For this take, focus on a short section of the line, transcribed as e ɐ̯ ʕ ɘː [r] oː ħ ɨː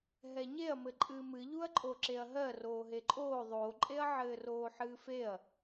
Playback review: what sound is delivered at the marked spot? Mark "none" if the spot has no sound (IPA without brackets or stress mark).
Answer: r